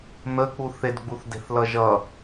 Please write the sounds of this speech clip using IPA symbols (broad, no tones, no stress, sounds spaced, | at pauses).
n̪ ə k͡p u θ e d ɡ͡b u θ d e̤ θ l ʌ ʒ ʌ